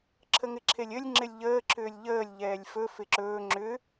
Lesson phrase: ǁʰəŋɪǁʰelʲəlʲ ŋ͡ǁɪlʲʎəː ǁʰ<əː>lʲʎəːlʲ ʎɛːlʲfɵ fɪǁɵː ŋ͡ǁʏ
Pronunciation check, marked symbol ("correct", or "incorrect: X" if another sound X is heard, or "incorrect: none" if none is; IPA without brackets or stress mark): incorrect: ʏː